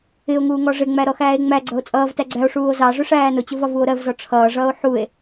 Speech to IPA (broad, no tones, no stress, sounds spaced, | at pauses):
ɪ o̯ ŋ uː ŋ ɔ ʐ ɪ ŋ͡m æ ɾ ɔ x æː e̯ ŋ͡m æ ɡ͡ǀ ʌ o̯ t͡sʼ ʌː v t æ ɡ͡ǀ æ o̯ ʂ uː o̯ z ɑ ʐ ʊ ʂ æː n ʊ t͡ɕ ʊ v ɒ v u o̯ ɾ ɜ v z ɔ ʈ͡ʂʰ ʌː ʐ ʌː o̯ ħ u e̯